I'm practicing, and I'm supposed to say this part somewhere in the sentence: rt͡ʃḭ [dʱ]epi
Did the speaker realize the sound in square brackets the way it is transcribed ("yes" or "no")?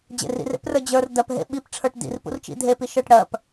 yes